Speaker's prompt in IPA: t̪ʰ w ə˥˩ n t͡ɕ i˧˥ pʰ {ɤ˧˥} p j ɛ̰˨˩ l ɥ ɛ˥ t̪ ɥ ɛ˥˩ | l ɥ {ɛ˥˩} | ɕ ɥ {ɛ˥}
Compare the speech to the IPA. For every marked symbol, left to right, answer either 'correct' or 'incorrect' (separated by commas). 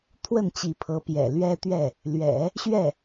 correct, incorrect, incorrect